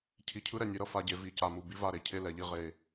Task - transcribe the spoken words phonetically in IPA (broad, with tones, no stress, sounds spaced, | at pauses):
cʰ i˨ cʰ ɯ˦ ɾ ɛ˨ nʲ e˨ ɾ ʌ˦ f a˨ ɟ e˨ v i˨ c a˨ m u˨ b i˦ v a˦˨ ɾ e˨ cʰ e˦ l ɛ˨ ʎ i˦ ʁ e˨